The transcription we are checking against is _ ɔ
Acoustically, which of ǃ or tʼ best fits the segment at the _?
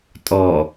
tʼ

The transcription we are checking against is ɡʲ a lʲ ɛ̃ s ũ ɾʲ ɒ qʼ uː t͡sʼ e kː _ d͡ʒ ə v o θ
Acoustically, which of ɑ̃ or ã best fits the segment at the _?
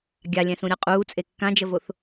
ã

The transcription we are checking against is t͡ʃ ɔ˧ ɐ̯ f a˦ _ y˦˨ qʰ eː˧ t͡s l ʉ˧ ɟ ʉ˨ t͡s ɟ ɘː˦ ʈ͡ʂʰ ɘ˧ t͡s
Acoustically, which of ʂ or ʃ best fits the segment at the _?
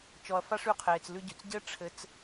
ʂ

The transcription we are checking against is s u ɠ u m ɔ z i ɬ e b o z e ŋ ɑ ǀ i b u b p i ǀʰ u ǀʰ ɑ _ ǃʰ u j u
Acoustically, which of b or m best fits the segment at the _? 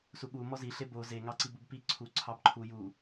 b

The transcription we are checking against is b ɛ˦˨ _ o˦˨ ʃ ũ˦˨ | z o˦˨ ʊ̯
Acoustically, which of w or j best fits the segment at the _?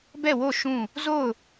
w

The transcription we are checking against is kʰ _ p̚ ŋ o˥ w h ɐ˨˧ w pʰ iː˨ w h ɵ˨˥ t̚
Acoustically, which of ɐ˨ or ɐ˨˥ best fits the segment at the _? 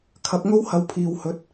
ɐ˨˥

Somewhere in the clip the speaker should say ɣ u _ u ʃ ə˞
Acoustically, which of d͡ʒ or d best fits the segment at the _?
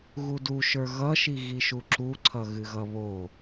d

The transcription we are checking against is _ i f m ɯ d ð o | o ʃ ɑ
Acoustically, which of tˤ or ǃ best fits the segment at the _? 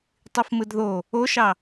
tˤ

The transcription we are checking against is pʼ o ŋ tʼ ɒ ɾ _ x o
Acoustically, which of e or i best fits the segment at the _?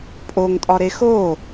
e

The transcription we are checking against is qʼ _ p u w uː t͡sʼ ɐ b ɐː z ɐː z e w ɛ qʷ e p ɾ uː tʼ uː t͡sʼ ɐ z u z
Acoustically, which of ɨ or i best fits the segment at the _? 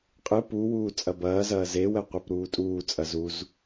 ɨ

